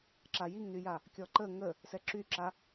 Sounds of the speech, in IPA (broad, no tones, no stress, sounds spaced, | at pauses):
ǁ a j i ŋ n y j a | kʲ ɔ ǃ ə ŋ ə | s ɛ ǁ y ǁ a